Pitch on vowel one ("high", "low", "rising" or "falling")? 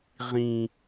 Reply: low